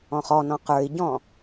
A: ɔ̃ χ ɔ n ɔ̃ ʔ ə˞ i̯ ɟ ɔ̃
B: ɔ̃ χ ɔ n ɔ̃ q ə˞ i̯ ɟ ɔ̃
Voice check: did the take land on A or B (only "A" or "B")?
B